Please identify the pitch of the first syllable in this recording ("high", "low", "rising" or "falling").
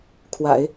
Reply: low